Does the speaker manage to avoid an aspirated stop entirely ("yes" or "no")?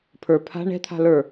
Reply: no